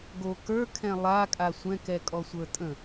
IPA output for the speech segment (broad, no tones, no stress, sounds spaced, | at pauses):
ɡ o k ə˞ kʰ ɛ̃ lˠ a kʼ a sʷ ɛ̃ k ɛ kʼ ɔ sʷ ə˞ tʼ ə̃